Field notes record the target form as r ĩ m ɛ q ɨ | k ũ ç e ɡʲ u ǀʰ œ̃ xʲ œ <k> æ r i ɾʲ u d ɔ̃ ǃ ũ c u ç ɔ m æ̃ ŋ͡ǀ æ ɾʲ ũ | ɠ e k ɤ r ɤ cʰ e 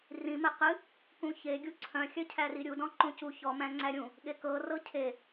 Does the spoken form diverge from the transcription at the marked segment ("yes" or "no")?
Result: yes